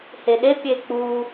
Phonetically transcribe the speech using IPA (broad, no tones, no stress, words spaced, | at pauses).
heɗe pʲek͡pu